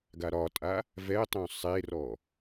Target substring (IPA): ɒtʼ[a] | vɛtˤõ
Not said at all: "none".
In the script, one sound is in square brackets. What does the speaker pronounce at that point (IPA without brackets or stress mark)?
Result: a